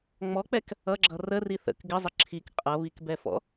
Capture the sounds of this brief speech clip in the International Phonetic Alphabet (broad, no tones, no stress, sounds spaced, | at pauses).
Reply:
ŋ͡m ɔ k͡p ɛ k | ʌ ɡ͡ǁ ʌ r ə r i θ ə̰ k ɡ ɪ zˤ ə ǁʰ i k qʼ ʌ β i k b ɛ f ɔ̰